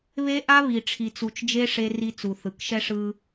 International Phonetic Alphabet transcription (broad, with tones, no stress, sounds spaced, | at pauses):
β e˦ ʔ a˦ β i˨ ʈ͡ʂʰ i˨ t͡s u˨ t͡ʃ d͡ʒ e˦ ʂ e˦ r i˦ t͡s u˨ θ ɯ˨ k ʃ ɛ˦ ʂ ɯ˦